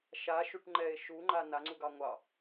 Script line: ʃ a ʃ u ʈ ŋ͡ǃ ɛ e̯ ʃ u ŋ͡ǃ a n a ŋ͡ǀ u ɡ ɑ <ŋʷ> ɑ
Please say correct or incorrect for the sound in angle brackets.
correct